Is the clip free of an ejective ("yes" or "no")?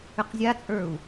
no